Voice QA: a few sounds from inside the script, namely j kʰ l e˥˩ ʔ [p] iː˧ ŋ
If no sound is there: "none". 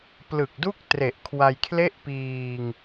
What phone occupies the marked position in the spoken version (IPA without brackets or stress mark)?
p